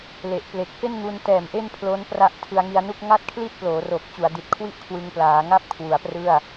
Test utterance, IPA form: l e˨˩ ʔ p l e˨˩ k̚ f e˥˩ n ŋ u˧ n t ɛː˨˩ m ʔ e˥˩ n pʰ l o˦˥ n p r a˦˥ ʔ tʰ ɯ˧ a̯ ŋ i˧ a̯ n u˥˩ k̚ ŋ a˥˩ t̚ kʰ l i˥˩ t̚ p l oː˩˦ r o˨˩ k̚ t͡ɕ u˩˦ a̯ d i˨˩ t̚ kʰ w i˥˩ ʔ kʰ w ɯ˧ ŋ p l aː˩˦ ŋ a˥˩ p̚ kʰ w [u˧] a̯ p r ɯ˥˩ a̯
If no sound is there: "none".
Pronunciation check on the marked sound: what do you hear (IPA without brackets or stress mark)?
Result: u˩˦